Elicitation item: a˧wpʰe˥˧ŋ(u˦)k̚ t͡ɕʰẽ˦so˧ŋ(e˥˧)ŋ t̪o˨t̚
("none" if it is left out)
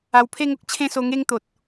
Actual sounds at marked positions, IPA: o˦, e˥˧

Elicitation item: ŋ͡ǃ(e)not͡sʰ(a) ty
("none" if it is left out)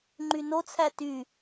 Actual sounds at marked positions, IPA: y, æ

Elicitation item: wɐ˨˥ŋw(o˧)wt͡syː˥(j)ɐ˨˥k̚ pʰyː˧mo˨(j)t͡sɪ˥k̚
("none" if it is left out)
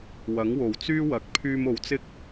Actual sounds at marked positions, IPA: o˨˩, w, w

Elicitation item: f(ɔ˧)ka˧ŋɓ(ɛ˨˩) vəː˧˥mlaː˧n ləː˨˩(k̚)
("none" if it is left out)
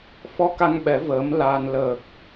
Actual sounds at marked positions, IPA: ɔ˧, ɛ˨˩˦, k̚

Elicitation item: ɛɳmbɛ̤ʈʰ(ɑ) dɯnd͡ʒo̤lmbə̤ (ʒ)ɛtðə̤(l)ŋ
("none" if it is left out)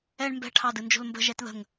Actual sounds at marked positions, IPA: ɑ, ʒ, none

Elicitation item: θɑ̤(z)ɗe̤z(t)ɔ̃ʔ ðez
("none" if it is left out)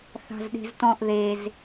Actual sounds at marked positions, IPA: z, t

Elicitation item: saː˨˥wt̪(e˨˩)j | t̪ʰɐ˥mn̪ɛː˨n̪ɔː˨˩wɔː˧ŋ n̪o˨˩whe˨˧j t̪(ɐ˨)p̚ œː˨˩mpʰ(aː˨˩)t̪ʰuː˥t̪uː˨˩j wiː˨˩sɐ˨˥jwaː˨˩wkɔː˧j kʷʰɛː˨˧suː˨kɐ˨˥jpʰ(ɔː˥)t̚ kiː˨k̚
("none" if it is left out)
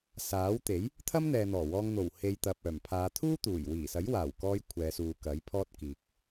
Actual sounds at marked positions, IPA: e˨˥, ɐ˨, aː˨˧, ɔː˥

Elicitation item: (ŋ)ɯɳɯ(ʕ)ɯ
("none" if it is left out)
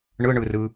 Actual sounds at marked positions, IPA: ɳ, r

